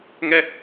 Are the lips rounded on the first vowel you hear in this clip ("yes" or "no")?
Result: no